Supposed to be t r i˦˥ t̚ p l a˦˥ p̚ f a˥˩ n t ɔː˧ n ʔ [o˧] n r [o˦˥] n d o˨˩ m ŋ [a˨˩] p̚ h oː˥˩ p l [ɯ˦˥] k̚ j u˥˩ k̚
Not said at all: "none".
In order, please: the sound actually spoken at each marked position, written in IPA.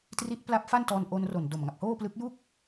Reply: o˧, o˨˩, a˨˩, ɯ˦˥

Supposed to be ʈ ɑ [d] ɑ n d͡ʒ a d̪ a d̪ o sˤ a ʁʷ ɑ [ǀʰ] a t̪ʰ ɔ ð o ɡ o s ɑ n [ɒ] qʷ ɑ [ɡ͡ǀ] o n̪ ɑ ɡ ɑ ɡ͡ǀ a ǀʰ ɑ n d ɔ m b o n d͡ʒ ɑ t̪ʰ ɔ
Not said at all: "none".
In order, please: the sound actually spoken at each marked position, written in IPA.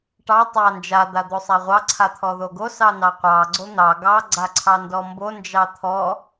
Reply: tˤ, ǀʰ, ɑ, ɡ͡ǀ

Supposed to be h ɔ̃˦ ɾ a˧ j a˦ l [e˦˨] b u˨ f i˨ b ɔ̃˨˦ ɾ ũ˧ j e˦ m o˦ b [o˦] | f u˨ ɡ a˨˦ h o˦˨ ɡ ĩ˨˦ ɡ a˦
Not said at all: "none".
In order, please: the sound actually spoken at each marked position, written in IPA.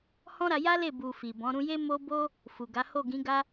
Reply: e˦˨, o˦

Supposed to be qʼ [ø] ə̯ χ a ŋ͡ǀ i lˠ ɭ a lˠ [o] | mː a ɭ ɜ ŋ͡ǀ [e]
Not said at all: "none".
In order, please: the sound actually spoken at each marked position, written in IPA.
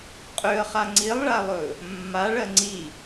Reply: ø, ɵ, i

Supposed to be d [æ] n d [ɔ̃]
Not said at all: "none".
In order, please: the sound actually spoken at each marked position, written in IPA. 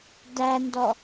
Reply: æ, ɔ

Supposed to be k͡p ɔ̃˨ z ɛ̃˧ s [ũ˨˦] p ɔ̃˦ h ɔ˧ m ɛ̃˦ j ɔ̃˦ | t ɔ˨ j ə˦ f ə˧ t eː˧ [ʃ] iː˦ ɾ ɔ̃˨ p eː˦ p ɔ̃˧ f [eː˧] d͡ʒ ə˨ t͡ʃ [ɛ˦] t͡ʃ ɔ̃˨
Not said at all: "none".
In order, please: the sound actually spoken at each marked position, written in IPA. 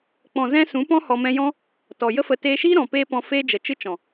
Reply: ũ˨˦, ʃ, eː˦, ɨ˦

